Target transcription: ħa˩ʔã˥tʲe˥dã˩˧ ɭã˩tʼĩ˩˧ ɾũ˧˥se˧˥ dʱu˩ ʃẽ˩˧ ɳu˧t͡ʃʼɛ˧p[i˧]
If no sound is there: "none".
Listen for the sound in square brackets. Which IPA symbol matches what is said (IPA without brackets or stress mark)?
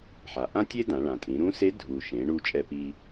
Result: i˧